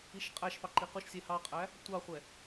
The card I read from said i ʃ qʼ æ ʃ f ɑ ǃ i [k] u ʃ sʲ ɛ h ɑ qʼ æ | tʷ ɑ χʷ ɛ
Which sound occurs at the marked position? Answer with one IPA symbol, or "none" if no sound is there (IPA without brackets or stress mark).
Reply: q